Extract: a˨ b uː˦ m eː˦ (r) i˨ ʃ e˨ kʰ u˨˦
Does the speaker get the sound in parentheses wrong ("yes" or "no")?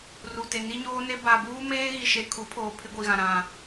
yes